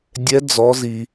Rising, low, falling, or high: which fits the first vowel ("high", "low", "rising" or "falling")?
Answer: rising